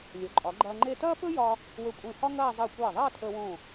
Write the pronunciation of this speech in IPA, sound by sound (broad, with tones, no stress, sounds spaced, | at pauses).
lʲ o˩˧ ǃʼ ɒ˩˧ ɡ͡ǃ ɐː˧ ŋ͡ǃ e˥˧ t ɐː˥ p ɵ˥ j ɒ˧ | w ɵ˧ kʷʼ ẽ˧˩ h ɒ˥ ŋ ɐː˥˧ zˤ əː˧˩ kʷ ɐː˧˩ ðˤ ɐː˥˧ tʰ əː˧ w õ˧˩